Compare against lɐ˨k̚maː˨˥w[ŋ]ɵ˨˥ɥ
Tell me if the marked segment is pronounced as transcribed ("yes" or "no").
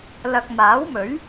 no